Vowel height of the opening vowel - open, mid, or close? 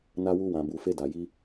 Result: open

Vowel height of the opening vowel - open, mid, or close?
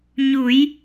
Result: close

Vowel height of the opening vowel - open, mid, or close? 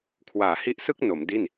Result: open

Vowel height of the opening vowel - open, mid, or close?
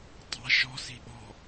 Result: open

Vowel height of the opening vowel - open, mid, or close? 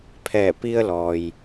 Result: mid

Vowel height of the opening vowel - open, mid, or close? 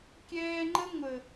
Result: mid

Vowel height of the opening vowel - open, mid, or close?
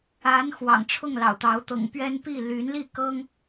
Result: open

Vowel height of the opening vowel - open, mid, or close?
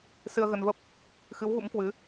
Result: close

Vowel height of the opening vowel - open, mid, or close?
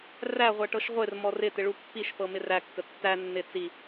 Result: open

